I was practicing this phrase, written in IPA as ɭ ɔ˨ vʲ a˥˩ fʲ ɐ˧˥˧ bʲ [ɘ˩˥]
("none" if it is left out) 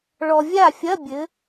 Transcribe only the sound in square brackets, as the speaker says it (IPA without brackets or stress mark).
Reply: ɘ˩˥